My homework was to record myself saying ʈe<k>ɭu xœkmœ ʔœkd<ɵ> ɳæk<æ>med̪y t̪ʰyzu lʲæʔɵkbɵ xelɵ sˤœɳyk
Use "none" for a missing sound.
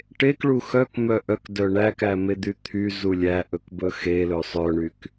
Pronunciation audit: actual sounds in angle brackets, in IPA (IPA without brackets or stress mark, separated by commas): k, œ, æ